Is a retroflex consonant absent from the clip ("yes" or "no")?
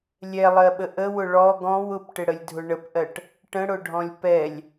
no